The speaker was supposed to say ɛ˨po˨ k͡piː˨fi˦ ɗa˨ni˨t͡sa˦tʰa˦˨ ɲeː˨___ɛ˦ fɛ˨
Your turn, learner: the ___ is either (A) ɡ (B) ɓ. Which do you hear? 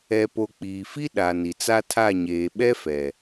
B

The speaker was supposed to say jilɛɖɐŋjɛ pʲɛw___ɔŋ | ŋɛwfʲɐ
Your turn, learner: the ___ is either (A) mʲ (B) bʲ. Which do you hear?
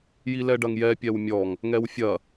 A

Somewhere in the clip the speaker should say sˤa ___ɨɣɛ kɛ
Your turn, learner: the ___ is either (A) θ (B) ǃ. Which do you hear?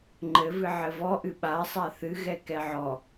A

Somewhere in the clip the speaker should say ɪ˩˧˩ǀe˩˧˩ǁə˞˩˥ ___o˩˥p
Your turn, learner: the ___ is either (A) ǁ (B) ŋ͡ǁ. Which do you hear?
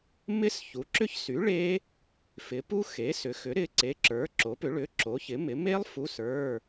A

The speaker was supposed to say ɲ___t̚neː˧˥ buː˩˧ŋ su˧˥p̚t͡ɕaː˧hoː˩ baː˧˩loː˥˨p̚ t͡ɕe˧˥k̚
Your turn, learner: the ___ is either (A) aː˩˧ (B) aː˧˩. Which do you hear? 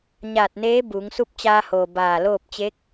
B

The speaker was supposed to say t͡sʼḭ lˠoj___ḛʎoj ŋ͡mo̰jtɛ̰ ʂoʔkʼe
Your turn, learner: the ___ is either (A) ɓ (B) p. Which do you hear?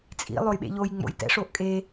A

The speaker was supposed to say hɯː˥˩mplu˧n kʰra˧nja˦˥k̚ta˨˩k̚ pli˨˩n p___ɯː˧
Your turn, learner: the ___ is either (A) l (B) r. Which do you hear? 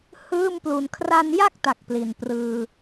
B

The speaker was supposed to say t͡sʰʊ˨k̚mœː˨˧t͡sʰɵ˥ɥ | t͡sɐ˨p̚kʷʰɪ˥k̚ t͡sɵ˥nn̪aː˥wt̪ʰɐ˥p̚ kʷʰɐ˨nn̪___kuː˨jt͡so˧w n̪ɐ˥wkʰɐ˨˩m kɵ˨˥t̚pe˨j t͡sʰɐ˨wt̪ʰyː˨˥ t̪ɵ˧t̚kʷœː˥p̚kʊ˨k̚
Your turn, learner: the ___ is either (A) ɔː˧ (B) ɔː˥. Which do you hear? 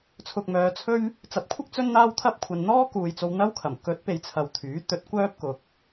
B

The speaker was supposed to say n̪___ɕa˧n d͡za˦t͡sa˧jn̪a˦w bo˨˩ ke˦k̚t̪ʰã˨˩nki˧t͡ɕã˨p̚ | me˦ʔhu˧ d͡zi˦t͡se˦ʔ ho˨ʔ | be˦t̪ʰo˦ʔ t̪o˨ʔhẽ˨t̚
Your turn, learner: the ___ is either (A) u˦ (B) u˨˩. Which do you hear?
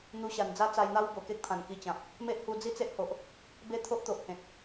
A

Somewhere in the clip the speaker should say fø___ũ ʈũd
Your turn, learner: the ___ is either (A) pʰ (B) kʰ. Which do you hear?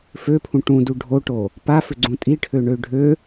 A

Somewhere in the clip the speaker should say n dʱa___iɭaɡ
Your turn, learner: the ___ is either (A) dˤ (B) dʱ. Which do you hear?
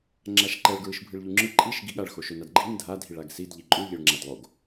B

